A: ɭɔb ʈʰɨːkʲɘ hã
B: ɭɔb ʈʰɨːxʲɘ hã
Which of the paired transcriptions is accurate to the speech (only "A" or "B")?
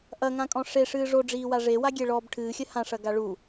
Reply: B